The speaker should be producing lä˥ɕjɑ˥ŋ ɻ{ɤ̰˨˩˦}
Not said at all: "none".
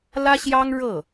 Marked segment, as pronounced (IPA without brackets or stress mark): ɤ˥˩